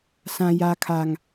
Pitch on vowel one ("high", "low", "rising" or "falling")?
low